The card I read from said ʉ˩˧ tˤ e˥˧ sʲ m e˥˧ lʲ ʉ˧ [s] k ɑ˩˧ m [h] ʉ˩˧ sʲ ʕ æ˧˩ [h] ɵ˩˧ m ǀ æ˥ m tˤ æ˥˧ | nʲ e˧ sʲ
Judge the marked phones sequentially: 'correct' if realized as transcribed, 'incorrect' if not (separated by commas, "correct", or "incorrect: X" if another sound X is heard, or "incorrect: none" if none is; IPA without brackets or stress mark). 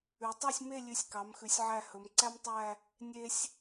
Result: incorrect: sʲ, incorrect: x, correct